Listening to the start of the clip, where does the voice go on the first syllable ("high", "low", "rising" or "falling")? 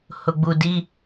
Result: low